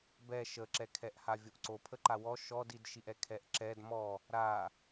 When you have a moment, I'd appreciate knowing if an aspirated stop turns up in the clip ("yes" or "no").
yes